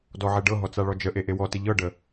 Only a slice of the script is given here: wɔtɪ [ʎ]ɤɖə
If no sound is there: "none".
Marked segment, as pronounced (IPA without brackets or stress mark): ʎ